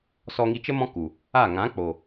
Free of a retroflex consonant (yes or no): yes